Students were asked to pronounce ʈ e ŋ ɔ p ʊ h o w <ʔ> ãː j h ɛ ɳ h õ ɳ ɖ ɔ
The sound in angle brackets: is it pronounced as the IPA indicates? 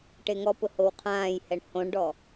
no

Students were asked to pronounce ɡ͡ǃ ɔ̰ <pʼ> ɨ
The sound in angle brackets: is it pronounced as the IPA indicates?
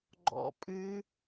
yes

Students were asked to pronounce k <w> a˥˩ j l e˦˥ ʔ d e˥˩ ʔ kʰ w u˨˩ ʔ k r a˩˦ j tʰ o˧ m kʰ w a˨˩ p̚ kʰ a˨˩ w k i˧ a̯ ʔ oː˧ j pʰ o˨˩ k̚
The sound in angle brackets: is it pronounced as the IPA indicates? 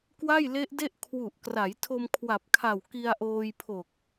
yes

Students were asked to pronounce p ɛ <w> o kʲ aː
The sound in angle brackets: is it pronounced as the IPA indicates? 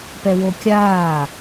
yes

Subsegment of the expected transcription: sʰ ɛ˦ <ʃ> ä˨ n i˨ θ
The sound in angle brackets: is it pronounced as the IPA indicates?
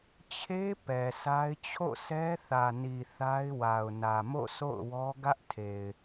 no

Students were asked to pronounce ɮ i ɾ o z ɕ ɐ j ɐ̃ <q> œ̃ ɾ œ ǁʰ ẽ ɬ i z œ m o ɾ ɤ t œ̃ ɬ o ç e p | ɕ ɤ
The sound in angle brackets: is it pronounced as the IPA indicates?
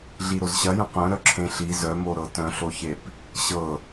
yes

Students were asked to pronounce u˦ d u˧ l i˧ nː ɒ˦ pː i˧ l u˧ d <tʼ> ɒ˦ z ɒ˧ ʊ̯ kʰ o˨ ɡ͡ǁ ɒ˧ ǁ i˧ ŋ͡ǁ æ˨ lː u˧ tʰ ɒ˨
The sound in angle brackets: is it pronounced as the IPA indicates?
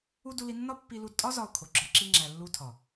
yes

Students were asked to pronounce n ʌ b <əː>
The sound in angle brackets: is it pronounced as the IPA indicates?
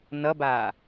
no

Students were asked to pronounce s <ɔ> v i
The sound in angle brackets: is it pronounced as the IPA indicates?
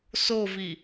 no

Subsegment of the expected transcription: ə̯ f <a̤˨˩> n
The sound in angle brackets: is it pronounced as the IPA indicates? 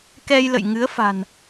yes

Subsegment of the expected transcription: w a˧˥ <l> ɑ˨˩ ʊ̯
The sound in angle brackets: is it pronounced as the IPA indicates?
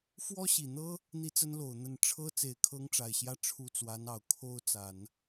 no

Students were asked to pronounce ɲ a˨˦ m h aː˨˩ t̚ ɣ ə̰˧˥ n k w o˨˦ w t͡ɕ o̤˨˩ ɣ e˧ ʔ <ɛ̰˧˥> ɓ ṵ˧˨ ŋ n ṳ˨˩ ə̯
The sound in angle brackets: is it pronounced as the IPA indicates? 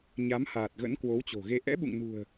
yes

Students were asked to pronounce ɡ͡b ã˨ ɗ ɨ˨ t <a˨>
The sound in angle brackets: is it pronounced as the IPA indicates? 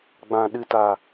yes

